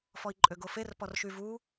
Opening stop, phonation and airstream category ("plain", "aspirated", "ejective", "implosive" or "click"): click